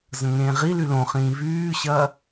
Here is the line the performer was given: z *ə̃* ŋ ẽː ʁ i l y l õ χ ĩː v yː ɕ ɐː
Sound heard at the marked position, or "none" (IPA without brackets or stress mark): ə̃